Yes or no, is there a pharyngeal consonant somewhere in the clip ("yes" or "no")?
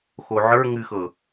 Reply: yes